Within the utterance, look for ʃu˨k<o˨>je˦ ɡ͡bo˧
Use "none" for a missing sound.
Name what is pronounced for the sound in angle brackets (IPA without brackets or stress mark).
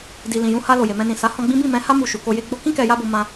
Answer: o˧